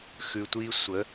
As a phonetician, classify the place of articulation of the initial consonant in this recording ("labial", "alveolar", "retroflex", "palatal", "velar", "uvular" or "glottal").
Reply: velar